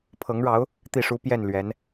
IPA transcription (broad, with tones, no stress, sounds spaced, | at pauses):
pʰ ɤ˧˥ ŋ ɻ ɑ˧˥ ʊ̯ | t̪ i˥˩ ʂ u˥ p j ɛ˥˩ n l ɥ ɛ˧˥ n